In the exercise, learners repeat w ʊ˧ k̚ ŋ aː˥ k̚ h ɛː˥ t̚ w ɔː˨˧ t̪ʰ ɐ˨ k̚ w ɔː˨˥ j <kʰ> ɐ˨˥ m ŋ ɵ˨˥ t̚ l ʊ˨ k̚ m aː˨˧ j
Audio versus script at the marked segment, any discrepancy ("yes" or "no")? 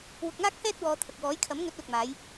no